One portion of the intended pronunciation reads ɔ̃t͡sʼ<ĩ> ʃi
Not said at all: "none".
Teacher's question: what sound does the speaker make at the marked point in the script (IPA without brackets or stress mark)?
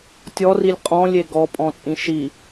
ĩ